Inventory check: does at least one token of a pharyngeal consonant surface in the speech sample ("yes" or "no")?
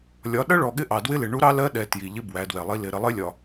no